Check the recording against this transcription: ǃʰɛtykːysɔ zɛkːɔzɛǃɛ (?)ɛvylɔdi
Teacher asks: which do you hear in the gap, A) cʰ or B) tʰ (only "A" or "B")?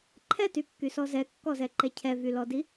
A